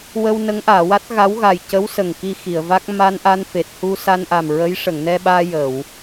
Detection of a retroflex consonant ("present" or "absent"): present